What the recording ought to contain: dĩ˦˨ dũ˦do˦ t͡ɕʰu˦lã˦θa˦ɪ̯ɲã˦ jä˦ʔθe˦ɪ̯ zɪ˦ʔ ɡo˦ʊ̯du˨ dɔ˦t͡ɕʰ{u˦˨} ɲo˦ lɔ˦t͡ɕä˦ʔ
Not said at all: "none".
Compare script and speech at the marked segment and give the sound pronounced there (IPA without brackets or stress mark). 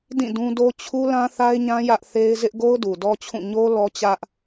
ũ˦˨